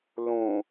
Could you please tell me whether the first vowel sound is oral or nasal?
nasal